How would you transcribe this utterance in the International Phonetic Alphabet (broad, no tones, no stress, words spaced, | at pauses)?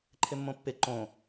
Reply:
ǃʰɪmːõpːɪ ǃõ